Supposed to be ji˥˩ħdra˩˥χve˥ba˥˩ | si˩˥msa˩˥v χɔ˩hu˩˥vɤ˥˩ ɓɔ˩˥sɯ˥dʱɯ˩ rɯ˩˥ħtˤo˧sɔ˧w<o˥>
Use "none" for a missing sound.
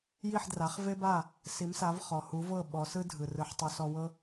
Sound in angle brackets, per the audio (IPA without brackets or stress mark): ɤ˥